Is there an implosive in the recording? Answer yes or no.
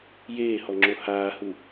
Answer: no